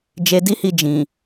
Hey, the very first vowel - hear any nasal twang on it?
no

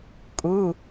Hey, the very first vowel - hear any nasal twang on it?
no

